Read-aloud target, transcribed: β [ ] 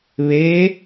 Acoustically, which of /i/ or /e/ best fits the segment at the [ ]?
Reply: e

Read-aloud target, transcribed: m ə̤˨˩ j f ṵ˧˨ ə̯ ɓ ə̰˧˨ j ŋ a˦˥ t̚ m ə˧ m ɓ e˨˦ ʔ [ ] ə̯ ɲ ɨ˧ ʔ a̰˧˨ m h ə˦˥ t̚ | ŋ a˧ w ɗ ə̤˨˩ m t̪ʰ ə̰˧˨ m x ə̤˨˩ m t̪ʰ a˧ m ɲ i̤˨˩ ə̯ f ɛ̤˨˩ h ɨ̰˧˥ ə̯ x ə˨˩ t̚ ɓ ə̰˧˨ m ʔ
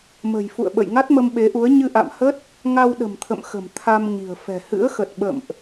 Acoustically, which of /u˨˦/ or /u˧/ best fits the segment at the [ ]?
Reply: u˨˦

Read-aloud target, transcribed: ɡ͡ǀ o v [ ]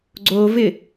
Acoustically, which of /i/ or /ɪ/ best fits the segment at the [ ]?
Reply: ɪ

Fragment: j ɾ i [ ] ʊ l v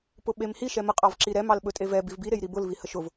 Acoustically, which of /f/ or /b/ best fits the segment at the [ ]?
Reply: b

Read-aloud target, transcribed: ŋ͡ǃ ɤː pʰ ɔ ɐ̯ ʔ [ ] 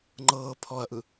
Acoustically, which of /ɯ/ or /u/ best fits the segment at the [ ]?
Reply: ɯ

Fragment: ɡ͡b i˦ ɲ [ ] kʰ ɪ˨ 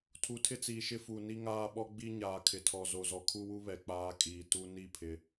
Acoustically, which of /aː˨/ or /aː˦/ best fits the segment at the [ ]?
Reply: aː˨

